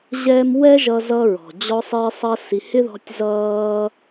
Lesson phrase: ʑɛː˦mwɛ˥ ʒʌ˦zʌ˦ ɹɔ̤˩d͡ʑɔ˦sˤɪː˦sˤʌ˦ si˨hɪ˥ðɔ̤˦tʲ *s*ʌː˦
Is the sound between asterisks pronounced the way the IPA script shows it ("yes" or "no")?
no